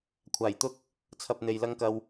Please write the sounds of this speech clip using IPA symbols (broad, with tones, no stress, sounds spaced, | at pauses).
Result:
kʷʰ aː˨˩ j t̪ ʊ˥ k̚ | t͡sʰ ɐ˧ p̚ n̪ e˨ j l ɐ˥ ŋ k ɐ˧ w